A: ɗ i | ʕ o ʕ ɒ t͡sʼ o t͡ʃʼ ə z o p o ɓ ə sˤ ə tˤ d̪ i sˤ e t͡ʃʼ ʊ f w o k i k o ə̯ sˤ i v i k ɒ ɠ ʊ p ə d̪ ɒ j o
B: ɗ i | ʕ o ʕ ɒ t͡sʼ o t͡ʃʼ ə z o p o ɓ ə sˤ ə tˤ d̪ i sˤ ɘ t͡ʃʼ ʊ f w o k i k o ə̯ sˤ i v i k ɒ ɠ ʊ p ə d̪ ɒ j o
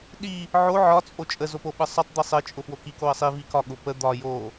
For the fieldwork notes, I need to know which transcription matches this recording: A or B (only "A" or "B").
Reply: B